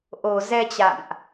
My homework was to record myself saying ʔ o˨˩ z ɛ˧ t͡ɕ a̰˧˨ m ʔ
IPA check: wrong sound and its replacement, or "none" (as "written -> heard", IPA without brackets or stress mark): none